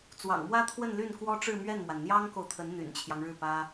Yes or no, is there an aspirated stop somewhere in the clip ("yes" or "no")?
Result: yes